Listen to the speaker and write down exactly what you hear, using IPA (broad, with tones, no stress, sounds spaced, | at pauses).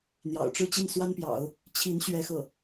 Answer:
n̪ j ɑ̰˨˩ ʊ̯ ʈ͡ʂ ɻ̩˥ t͡ɕ i˥˩ n s w a˥ n p j ɑ̰˨˩˦ ʊ̯ | t͡ɕʰ i˧˥ n ɕ ɥ ɛ˥ x ɤ˥˩